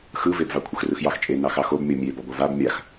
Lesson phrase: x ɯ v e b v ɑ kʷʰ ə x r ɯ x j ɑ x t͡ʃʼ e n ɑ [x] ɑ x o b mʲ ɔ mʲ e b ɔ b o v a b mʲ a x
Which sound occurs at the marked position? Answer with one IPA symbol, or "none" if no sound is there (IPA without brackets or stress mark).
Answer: x